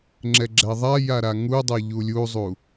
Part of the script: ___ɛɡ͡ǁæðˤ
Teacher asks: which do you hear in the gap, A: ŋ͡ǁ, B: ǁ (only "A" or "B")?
A